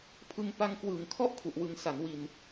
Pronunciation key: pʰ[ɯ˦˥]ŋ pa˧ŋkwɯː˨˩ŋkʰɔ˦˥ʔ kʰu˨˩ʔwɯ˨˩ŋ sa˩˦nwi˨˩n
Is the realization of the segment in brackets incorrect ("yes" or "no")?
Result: yes